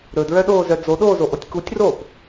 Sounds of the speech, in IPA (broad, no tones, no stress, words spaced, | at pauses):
ɾɵdɹœɗoːzœ d͡zoɗoːzoʔotʲ kutʲroːp